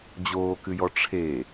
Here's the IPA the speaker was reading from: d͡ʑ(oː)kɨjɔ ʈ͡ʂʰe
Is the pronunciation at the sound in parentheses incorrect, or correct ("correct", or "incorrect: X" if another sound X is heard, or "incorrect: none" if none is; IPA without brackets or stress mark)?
correct